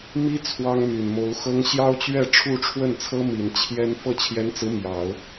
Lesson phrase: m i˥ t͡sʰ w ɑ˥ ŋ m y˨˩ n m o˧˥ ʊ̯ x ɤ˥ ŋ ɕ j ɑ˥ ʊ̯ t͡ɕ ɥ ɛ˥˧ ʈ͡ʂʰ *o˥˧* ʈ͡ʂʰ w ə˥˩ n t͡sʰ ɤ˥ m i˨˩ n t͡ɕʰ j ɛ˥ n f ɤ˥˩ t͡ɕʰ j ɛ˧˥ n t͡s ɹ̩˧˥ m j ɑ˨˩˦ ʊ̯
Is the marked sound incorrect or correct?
incorrect